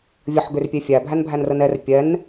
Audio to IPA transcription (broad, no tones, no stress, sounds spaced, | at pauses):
vʲ ə ħ ɡ ʏ r pʲ e fʲ æ bʱ æ n bʱ æ n r ə n ɛ r pʲ ɛ n